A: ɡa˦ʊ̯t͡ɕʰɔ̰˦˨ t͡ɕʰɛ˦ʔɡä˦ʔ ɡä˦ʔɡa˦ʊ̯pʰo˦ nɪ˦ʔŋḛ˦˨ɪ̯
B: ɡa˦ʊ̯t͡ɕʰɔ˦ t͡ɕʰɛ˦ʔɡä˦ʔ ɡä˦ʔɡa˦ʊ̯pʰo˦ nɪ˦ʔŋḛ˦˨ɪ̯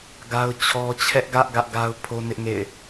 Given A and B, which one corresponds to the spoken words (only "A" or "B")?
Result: B